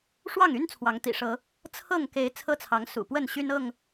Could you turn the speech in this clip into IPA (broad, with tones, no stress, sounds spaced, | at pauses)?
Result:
ʂ w ɑ˥˨ ŋ y˦ n t͡sʰ w ɑ˨˦ ŋ t̪ ḭ˨˩ ʂ ɤ˨˦ | t͡sʰ ɤ˥˨ ŋ k e˨˦ ɪ̯ t͡sʰ ɤ˦ t͡sʰ ɑ˨˦ ŋ s ṵ˨˩ p w ə˥˨ n ɕ y˦ n ɤ˥˨ ŋ